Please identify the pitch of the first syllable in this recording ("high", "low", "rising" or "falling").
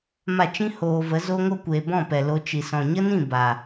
falling